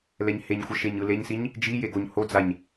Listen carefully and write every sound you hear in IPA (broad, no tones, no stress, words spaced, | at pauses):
lɛɲheɲxʷʌ ʃeɲɯleɲsiɲ | d͡ʒi jeɡoɲhod͡zaɲ